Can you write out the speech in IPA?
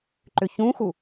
ǃ ʏ ç ũ x u

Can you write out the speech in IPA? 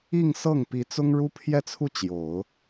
i˥˧ ŋ s ɤ˥˩ ŋ p i˧˥ t͡s ʊ˥ ŋ ɻ u˥ pʰ j ɛ˥˧ t͡sʰ u˥˩ t͡ɕ j o˨˩˦ ʊ̯

